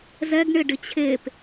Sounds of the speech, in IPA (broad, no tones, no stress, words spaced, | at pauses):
zɛɡ ɳɪɖɪt͡ɕʰep